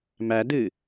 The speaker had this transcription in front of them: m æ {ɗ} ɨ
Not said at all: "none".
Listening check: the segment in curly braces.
d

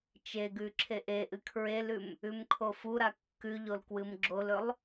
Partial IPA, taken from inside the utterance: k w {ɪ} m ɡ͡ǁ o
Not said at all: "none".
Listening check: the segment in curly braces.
ɨ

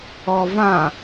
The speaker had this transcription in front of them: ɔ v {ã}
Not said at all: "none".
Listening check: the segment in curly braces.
ã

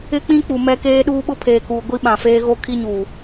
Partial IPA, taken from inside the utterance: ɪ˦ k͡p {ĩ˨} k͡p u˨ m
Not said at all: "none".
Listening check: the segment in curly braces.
ĩ˦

